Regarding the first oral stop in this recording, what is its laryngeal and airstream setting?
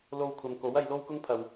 aspirated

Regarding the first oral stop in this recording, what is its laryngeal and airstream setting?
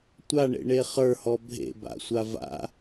plain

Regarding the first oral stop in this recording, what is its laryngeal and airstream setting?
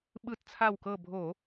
implosive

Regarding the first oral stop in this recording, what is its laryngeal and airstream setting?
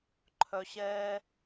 click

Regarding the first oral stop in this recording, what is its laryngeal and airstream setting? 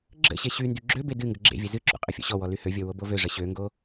click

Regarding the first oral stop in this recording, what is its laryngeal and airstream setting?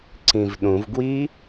click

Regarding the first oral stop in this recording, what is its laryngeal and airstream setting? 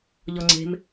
click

